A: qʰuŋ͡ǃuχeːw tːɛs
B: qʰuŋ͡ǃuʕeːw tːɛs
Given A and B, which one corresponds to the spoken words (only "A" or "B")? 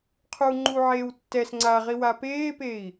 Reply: B